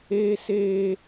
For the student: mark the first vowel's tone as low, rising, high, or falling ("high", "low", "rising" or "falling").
high